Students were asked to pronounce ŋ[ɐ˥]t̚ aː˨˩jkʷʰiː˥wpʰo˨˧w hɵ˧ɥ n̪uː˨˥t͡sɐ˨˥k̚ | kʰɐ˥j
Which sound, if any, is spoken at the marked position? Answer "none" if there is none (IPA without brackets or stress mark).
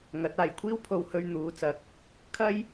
ɐ˨˥